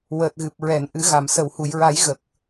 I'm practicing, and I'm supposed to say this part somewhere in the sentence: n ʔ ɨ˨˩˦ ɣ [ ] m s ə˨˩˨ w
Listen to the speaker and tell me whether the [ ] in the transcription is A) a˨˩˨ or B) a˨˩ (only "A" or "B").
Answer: A